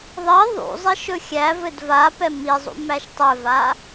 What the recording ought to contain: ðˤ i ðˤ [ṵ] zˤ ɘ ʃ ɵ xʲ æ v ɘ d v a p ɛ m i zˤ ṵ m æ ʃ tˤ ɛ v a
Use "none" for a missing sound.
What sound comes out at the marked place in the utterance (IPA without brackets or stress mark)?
ṵ